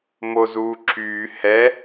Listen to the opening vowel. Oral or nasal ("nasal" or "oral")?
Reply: oral